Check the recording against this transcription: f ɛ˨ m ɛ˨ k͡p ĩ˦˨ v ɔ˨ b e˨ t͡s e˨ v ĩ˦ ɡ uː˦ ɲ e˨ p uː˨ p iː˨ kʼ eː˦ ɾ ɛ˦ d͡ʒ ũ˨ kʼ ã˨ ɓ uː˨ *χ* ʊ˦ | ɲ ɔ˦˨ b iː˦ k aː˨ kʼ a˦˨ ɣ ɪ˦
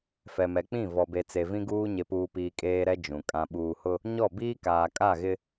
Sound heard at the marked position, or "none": h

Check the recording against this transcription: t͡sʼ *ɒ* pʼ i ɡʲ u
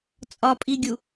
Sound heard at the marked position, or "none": ɒ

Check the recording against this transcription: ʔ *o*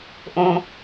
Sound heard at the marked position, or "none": õ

